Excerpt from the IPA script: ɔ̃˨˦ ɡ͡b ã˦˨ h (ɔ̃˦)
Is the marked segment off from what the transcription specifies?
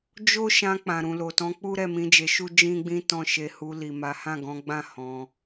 yes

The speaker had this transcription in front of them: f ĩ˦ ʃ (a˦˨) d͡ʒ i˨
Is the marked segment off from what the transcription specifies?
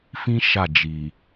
no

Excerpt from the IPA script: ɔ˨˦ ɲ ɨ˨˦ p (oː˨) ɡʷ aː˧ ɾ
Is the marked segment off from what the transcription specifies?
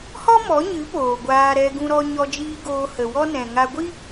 no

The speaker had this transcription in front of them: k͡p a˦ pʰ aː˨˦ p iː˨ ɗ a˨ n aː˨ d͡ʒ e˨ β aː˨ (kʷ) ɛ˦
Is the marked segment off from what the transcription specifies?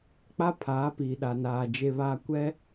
no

